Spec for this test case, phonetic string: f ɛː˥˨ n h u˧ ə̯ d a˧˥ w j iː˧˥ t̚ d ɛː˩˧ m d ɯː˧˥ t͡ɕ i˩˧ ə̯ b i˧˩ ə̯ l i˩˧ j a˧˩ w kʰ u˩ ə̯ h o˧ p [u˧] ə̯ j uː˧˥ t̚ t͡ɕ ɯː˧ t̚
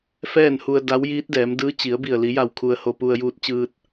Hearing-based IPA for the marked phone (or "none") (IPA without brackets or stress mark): u˧